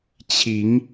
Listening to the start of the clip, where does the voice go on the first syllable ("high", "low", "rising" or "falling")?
rising